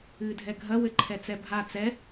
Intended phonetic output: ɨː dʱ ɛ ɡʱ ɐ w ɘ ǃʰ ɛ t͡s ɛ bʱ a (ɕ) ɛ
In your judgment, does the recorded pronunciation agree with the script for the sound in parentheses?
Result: no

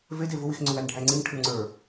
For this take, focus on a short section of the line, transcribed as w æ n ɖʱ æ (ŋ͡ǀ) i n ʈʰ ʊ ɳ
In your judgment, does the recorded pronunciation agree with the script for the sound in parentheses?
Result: yes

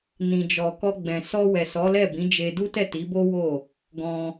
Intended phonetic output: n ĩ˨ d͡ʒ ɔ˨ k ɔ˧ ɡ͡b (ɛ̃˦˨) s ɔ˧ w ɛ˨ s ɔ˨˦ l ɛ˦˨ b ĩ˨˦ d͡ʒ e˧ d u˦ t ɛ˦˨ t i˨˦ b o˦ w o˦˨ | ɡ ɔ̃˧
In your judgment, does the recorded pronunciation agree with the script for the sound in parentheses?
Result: no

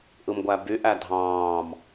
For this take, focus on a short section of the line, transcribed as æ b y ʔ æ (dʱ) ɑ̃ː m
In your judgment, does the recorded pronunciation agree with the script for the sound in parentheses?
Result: yes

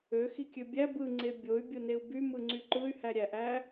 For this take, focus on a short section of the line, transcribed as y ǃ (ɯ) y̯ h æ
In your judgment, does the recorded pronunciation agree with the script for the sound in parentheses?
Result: yes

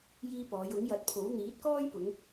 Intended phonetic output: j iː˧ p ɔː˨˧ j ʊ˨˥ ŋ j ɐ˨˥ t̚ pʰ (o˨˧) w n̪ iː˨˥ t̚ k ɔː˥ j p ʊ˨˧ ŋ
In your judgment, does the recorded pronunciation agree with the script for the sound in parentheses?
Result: no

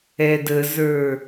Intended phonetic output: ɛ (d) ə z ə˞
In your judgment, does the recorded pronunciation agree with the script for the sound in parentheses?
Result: yes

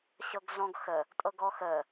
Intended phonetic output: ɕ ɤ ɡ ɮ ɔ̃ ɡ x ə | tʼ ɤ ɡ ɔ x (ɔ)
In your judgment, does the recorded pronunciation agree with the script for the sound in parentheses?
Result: no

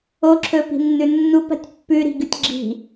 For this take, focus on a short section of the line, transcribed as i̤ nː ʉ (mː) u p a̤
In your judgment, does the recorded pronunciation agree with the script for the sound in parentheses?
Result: no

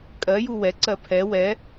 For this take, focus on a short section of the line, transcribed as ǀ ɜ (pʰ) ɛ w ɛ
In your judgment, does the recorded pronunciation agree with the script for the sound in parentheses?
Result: yes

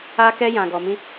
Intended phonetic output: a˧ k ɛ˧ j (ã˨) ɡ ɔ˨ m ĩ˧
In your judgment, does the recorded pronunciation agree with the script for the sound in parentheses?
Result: yes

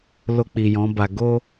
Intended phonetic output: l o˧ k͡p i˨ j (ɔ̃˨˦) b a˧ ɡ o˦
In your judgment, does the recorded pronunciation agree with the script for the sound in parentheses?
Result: yes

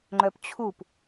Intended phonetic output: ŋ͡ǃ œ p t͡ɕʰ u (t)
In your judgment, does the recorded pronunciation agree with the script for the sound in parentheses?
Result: no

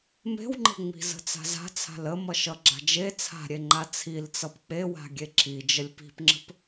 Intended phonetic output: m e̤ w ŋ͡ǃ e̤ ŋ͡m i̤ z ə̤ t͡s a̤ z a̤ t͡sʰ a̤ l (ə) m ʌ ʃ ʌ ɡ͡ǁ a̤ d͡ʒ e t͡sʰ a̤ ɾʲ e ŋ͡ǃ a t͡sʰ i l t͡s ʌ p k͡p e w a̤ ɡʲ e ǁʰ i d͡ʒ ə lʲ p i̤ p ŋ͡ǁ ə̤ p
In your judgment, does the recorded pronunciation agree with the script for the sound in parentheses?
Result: yes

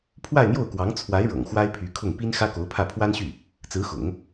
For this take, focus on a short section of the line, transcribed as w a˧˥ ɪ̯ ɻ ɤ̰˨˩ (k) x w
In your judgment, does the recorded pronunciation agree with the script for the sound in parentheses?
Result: no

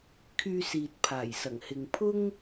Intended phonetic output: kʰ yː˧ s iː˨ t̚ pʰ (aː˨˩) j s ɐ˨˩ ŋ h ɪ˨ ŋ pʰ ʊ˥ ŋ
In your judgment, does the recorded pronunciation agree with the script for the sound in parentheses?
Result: yes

